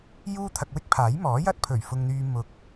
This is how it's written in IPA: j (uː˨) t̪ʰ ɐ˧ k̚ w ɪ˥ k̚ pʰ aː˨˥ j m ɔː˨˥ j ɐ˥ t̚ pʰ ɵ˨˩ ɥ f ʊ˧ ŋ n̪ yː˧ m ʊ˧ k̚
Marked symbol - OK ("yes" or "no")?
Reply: no